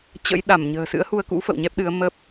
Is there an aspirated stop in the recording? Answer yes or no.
no